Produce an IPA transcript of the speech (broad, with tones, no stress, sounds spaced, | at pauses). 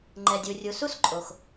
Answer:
ŋ͡ǃ ɛ˨ dʲ u˨ rʲ u˨ s u˥ s ǃʼ o˩ x